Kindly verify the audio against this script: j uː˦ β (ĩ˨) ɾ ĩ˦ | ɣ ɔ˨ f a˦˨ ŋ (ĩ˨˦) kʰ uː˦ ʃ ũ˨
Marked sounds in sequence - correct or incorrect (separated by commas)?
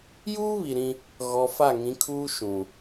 incorrect, correct